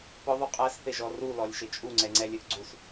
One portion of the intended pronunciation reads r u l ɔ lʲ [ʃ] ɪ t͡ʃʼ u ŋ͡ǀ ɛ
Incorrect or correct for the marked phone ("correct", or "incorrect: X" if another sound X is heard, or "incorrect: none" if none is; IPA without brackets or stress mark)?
correct